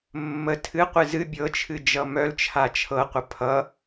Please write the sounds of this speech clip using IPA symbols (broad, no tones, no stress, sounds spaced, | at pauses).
mː ə tʰ ɨ qʷ ɨ z ɨ bʲ ɤ t͡ʃʰ ɨ d͡ʒ ʌ m œ l t͡ʃʰ a t͡ʃʰ ɤ qʷ ə pʰ ʌ